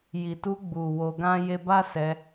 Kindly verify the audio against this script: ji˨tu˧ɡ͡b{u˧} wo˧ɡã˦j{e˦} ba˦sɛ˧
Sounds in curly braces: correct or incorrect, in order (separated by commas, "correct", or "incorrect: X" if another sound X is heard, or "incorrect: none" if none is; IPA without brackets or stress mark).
incorrect: u˨, correct